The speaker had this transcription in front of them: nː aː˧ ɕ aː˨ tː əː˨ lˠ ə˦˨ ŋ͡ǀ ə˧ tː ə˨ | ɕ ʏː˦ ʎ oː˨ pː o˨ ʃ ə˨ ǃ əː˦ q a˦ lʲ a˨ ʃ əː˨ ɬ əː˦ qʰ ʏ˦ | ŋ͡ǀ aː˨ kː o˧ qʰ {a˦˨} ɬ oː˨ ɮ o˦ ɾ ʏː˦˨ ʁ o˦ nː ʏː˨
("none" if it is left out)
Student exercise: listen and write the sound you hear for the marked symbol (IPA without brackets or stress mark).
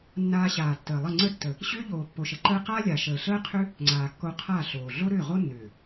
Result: a˦˨